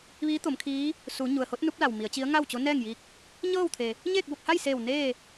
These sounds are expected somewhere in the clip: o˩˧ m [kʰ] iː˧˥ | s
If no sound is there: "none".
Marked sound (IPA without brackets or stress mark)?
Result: kʰ